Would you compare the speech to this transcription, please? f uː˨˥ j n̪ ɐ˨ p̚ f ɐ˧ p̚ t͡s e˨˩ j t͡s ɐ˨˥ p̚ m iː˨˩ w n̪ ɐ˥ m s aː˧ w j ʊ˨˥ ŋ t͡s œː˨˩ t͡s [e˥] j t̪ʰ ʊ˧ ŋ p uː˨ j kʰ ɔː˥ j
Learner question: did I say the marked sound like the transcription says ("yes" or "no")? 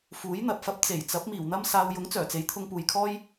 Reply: no